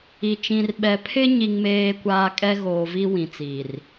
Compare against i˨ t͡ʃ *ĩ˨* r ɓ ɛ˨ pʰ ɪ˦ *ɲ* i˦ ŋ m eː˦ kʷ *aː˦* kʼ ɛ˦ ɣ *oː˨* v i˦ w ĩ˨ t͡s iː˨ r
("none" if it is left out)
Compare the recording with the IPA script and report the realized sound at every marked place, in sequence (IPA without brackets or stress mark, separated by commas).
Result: ĩ˨, ɲ, aː˦, oː˨